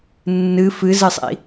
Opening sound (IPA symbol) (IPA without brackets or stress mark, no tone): nː